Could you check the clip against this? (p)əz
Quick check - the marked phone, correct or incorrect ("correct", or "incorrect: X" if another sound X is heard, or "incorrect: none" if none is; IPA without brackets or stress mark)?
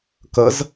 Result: incorrect: k